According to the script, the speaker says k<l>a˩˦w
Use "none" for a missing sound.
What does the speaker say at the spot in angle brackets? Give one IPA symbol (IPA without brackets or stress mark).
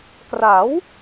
r